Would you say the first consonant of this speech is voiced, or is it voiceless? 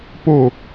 voiceless